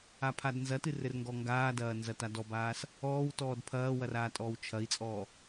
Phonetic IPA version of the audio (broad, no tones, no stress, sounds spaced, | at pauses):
a pʰ a d n z ɐ t ɨ r ɘ r ŋ ɡ ɔ ŋ ɡ aː d ɐː n z ɐ t a d ɔ b aː s | ɔː w t ɔː d pʰ ɐː w ɐ r aː tʼ ɔː w t͡ʃʰ ɐ i̯ t͡sʼ ɔː